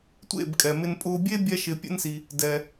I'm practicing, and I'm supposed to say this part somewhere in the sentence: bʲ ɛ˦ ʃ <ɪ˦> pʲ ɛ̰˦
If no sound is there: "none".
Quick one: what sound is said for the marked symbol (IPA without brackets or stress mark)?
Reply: ɪ˧